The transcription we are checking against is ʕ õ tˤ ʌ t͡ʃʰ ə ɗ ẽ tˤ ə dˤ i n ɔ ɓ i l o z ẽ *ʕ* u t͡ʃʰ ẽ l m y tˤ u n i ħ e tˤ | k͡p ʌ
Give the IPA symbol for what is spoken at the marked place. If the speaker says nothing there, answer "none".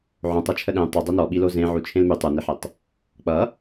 ʕ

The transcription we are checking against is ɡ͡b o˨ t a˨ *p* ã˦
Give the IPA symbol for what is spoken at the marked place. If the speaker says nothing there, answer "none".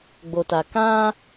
k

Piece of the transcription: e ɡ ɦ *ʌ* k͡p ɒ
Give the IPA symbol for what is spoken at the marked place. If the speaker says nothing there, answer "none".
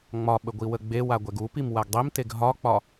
ɒ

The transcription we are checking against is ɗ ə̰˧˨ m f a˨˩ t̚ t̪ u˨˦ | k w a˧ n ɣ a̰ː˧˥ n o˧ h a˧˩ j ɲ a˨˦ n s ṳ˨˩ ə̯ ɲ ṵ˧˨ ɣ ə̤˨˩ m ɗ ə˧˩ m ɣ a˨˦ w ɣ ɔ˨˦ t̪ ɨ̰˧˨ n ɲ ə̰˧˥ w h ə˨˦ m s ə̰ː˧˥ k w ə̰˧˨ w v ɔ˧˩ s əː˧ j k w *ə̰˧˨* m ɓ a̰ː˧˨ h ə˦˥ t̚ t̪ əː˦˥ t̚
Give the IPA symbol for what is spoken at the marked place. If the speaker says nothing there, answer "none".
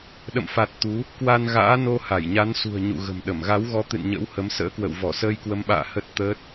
ə˨˦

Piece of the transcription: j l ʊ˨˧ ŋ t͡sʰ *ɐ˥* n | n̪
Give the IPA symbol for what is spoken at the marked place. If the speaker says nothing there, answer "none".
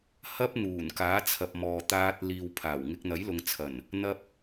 ɐ˨˩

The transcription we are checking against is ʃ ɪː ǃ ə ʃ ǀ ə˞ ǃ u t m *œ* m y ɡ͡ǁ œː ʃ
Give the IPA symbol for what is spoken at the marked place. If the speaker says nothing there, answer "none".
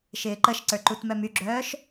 œ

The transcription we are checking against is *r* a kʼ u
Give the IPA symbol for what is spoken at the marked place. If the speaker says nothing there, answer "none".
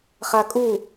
χ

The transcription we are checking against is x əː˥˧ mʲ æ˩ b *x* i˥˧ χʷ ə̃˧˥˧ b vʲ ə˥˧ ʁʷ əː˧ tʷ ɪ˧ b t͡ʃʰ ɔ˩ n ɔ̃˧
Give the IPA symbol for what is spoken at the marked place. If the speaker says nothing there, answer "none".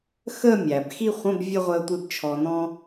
x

